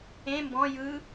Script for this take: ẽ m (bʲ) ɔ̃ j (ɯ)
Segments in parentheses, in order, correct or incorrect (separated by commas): incorrect, correct